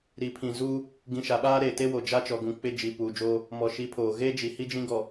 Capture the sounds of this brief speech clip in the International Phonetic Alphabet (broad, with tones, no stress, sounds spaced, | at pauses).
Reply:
ɾ i˨ pʰ ĩ˨ z uː˦ | ɡ ĩ˨ ʃ a˨ ɓ aː˦ ɾ eː˨ t e˦ w o˨ d͡ʒ a˦ t͡ʃ ɔ˨ ɡ ũ˨ k͡p ɪ˦˨ d͡ʒ i˨ p uː˨ d͡ʒ oː˦ | m ɔ˨ ʃ i˨˦ pʰ oː˨ ɣ eː˦ d͡ʒ i˨ h i˦ d͡ʒ ĩ˦ ɡ ɔ˨